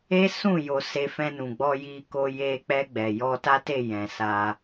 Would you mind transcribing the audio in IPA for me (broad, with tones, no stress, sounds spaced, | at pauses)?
e˦ s ũ˦˨ j o˧ s e˧ f ɛ̃˧ n ũ˨ ɡ͡b ɔ˧ j i˧ k o˧ j e˧ k͡p ɛ˧ ɡ͡b ɛ˨ j ɔ˧ t a˦ t e˦˨ j ɛ̃˨ s a˧